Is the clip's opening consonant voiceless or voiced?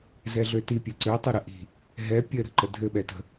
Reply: voiced